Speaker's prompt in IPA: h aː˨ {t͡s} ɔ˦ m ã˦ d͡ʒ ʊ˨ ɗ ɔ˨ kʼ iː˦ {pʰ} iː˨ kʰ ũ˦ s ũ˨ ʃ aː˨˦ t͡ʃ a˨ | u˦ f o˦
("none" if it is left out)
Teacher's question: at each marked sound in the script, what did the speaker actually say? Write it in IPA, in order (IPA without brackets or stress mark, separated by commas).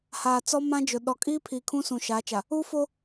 t͡s, pʰ